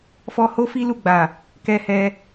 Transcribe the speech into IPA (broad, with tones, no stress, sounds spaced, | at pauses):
f ɔ˧ h o˦ f i˦ l u˦˨ ɡ͡b a˨ | k ɛ˧ h ɛ˧